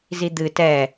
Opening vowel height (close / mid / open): close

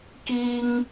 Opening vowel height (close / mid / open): close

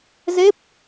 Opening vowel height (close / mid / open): mid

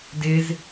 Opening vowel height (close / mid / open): close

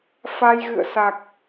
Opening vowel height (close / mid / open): open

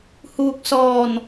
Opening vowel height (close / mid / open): close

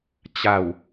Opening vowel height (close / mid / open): open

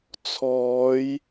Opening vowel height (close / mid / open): mid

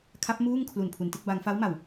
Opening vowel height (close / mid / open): open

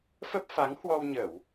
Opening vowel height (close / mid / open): mid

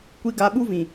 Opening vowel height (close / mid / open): close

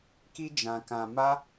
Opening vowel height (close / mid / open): close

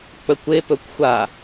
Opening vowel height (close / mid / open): mid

